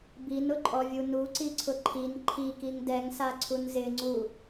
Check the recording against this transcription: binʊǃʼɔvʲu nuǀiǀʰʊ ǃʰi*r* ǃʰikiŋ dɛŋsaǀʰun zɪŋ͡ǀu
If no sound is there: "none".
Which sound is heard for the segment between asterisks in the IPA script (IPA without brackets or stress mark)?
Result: n